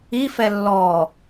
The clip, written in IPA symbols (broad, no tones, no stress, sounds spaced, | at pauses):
i f ɛ lː ɔ